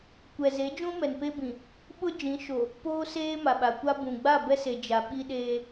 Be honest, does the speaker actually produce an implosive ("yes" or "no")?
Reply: yes